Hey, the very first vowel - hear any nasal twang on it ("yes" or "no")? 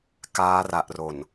no